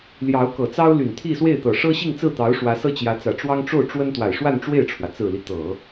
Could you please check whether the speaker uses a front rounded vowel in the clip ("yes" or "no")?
yes